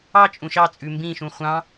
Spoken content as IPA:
ɑ t͡ʃʼ ũ ʃ ɑ t͡sʼ ʉ m b ĩ ʃ ũ χʷ ɑ̃

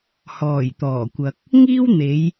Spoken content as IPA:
h ɔː˨˩ j t̪ ɔː˨˩ kʷ ɐ˨ k̚ | ŋ iː˥ w n̪ e˨˧ j

